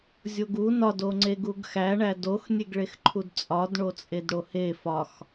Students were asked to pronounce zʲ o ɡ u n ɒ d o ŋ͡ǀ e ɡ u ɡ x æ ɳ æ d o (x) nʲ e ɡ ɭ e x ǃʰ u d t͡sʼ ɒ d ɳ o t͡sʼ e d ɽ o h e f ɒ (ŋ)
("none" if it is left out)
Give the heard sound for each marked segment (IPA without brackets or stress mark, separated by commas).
x, x